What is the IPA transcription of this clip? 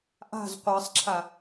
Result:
ʔ a̤ z qʷ əː sˤ ǁʰ a

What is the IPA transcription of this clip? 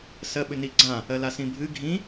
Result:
s ɜ ɓ ʏ n i ɡ͡ǀ ã | ɜ l a s ĩ bʱ ɨ ɡʱ ĩ

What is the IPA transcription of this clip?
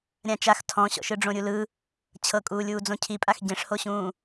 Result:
ɾʲ ã t͡ʃ a x tʰ ɔ̃ ɕ ɔ̰ ʃ ɯ ɖ͡ʐ õ ɾʲ u l ɯ | t͡ɕʰ ɤ kʼ uː lʲ uː d͡z õ cʰ i pʼ a x ɟ ẽ ʂ h o ɕ ũː

